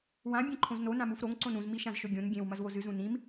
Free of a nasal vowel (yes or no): no